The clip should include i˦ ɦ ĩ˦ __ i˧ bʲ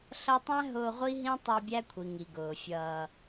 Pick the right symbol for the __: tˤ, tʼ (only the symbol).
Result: tˤ